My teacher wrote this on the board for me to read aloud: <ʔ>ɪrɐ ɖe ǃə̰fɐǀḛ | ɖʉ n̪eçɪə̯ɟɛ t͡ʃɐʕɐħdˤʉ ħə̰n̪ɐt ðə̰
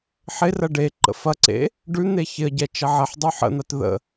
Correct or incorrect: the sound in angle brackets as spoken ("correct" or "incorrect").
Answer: incorrect